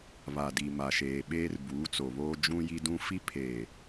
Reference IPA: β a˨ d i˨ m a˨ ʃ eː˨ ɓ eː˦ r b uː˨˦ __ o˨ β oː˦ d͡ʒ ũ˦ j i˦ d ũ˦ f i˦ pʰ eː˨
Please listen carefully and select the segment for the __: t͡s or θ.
t͡s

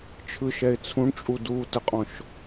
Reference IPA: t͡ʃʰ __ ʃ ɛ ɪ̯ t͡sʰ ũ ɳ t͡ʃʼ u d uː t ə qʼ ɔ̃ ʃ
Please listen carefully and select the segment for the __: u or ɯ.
ɯ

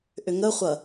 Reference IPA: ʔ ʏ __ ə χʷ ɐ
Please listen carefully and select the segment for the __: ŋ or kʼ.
ŋ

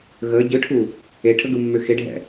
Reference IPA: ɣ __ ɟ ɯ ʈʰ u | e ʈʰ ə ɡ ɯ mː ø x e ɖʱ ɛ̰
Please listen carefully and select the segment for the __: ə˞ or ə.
ə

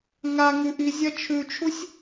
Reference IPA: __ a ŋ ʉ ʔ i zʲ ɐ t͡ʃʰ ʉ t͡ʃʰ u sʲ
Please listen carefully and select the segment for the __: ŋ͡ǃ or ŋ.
ŋ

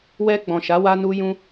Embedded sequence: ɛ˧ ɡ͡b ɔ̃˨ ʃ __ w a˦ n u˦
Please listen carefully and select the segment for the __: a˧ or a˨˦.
a˨˦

